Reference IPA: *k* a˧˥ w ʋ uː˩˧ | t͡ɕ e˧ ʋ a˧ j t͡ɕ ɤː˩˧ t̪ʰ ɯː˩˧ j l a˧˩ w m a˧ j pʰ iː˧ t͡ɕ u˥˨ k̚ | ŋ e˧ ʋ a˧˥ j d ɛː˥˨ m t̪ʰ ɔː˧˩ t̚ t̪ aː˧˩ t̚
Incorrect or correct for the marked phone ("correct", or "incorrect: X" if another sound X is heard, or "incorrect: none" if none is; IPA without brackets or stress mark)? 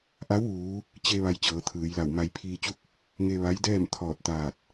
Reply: incorrect: ʔ